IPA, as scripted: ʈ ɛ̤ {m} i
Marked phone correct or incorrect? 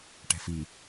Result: incorrect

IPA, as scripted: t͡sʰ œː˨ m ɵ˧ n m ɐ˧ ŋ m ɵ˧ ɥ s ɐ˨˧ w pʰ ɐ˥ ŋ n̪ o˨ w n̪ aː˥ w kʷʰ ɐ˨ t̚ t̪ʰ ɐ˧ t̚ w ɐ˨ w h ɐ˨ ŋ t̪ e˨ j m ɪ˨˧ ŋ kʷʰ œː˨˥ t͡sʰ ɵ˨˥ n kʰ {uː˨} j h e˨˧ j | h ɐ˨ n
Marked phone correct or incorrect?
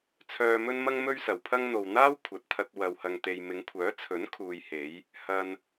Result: correct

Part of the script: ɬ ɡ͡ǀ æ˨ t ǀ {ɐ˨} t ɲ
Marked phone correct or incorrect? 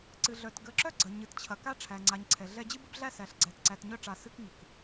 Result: incorrect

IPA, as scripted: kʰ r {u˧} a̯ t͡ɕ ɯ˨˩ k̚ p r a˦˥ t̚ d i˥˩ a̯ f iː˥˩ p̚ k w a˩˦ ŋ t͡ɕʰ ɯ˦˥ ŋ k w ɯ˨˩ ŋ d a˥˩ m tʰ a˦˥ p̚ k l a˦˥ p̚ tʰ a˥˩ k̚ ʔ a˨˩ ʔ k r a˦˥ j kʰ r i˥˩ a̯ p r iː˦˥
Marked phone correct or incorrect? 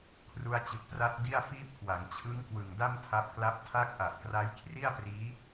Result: correct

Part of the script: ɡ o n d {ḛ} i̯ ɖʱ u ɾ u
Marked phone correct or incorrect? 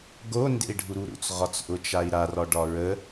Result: correct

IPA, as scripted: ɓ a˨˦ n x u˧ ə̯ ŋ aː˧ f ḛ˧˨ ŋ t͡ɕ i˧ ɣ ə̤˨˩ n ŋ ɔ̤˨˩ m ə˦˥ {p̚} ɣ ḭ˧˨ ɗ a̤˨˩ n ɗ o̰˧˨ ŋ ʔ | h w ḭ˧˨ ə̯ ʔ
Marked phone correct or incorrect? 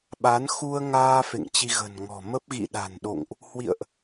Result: correct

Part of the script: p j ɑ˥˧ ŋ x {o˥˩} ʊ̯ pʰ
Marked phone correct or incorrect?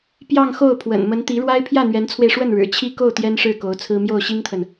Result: correct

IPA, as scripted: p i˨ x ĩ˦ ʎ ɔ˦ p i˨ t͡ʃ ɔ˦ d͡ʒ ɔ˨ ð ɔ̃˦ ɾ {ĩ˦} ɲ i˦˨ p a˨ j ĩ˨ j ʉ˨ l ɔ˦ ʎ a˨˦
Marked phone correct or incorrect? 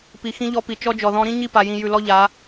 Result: correct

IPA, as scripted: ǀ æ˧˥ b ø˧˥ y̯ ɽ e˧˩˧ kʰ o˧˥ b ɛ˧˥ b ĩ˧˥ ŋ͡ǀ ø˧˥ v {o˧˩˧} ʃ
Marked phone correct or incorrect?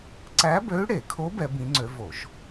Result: correct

